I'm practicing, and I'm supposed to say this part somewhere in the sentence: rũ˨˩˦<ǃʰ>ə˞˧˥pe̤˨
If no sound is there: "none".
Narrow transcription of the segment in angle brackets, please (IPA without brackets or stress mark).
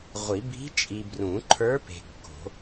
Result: ǃʰ